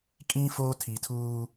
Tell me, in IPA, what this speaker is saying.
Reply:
kʼĩ˦ foː˦tʰi˨tʰuː˦

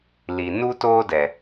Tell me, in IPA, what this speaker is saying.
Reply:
li˨nu˦ toː˦dɛ˨

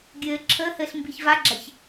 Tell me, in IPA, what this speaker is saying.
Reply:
ɡʲɘː ǁʰəːhɘːɬ mbiçvaɡ͡ǁaç

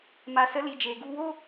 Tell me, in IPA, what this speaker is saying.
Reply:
ma˨sə˨˦li˨ d͡ʒeː˨ɡu˧woː˦

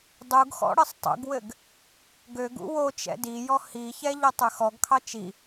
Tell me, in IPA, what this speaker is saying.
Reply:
dˤuɡxɔ̰ ɽɘsˤtˤṵɡwɘɡ | ɡøɡ ṵwot͡ʃɛ̰ dijɔ hiçɛ ʎɔtˤøxɔɡkʰɑ t͡ʃi

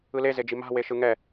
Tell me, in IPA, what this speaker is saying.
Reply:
ɯlezed͡ʒi ma̤ weʃɯŋɛ

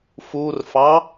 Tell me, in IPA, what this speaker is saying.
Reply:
furfɑ

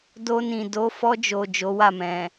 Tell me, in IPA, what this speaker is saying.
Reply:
do˧nĩ˨ do˨˦fɔ˧d͡ʒo˨ d͡ʒo˨˦wa˦˨mɛ̃˨

